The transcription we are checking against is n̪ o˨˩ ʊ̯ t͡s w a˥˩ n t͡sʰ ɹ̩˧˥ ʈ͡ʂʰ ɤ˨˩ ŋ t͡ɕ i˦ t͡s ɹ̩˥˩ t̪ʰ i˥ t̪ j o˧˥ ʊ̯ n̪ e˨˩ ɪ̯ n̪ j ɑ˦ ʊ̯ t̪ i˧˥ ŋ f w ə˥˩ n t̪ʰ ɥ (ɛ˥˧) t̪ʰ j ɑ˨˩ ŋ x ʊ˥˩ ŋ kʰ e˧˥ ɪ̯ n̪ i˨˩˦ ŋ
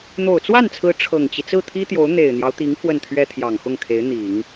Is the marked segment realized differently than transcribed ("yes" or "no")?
yes